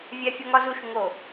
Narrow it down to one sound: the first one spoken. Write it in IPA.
vʲ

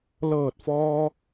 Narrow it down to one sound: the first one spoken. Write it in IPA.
l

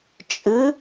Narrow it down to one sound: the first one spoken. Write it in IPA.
t͡ʃʼ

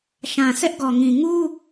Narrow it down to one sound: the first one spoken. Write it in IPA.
ʃ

